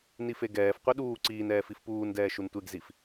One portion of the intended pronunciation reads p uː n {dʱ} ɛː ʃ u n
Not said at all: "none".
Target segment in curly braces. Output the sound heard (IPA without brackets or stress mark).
d